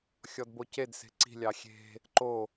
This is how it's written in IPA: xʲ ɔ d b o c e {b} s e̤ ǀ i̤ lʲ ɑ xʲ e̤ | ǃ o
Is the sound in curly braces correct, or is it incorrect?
incorrect